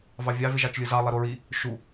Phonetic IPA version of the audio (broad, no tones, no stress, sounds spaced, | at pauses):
v ɑ vʲ ɑ v e ʒ ɑ t͡ʃ lʲ ɯ z ɑ lˠ i ɾ o ɹ i | ʃ u